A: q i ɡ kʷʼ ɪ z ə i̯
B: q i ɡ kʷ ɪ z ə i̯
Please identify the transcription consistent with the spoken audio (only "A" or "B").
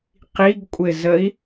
A